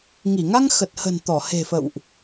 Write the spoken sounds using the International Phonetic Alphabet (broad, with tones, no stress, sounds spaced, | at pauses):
ŋ i˧˩ ŋ a˧ ŋ x ə˨˩ t̚ h ə̤˨˩ n t̪ ɔ˧˩ h e̤˨˩ f ə̰˧˨ w ʔ